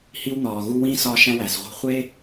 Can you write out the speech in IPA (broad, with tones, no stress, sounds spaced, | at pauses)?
h i˦ w n̪ ɒː˨ ɣ u˦ w ĩː˥ s ɒː˦ ʃ æ̃˦ w æ˩ s ʁʷ e̤˦ χʷ e˥